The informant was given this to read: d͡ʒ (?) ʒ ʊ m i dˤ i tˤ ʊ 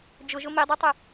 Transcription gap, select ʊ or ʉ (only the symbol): ʊ